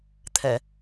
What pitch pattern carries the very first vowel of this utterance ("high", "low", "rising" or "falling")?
low